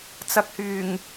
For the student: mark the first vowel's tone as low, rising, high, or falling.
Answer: low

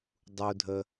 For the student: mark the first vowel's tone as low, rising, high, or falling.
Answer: high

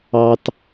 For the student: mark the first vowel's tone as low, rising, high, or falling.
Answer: high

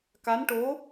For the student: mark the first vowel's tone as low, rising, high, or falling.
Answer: rising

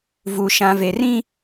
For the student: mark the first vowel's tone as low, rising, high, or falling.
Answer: high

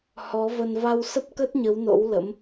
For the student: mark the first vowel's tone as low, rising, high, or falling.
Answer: rising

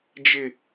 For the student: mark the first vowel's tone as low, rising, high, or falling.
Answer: low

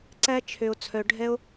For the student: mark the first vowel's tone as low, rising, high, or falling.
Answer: high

